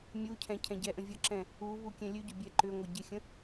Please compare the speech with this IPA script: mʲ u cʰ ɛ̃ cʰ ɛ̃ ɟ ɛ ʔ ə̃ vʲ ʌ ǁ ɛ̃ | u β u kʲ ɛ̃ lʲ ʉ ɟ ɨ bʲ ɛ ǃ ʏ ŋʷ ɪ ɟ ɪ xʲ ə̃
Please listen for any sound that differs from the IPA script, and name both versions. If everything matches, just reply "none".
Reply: ɨ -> ʏ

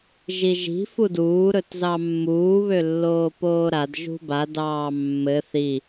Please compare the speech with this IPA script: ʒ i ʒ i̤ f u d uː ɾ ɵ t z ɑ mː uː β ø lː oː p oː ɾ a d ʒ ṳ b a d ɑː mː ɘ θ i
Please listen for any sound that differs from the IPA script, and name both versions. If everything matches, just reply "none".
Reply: none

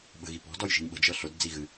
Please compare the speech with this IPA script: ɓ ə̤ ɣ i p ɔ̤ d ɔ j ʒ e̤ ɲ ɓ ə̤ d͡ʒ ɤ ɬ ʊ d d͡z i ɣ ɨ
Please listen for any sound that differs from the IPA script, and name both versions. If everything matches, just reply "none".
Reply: e̤ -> i̤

